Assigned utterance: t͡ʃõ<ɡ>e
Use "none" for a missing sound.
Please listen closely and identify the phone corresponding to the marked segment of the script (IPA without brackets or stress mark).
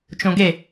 ɡ